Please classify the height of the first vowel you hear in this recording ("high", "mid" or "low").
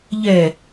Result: mid